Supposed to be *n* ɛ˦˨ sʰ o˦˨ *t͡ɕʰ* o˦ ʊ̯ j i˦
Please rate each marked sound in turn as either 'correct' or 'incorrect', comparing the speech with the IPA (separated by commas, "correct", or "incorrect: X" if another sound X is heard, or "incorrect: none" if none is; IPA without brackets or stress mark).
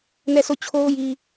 correct, correct